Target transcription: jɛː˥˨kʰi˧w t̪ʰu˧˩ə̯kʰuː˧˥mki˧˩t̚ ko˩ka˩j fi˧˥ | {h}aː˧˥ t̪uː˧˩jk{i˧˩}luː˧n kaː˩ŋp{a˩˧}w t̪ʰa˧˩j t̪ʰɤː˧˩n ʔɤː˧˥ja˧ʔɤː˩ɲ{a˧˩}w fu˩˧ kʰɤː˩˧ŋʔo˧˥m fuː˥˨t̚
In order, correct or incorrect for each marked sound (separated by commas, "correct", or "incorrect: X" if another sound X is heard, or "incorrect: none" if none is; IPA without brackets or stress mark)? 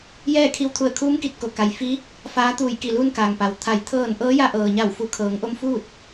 incorrect: f, correct, incorrect: a˩, correct